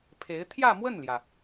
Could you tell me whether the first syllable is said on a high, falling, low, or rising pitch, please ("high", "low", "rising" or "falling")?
rising